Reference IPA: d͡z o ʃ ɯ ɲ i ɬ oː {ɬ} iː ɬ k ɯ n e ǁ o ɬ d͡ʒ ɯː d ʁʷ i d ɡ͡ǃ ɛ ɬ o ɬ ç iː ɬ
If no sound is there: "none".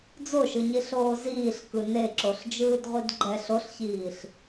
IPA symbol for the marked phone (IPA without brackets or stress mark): z